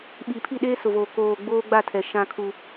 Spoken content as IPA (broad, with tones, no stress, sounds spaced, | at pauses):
ɓ i˨ pʰ i˦˨ ɗ eː˦ s ʊ˨ v o˨ k oː˨ ɡ͡b oː˦ ɡ͡b a˦˨ tʰ ɛ˨ ʃ ã˦ kʰ u˦